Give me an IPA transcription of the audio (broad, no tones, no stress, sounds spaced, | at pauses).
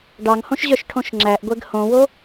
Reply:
ɖ ɑ ŋ h õ ʃ ʑ œ ʃ ʈʰ õ ʃ ŋ͡ǁ æ ʔ ɡʷ ɛ ɡ h õ w o